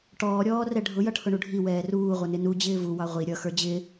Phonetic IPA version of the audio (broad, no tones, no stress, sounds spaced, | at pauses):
ʈ ɔː ɾʲ ɔː r ɛ ɖʱ ʊ j ʌ ʈʰ ʊ ɳ u ɖʱ i w ɛː r uː ʁʷ ʌ n ɪ n u d͡ʑ ɪː v u w ɑ ʁʷ i ɾʲ ʌ x ə˞ d͡ʑ ɪ